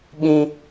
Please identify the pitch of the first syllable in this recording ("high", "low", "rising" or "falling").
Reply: high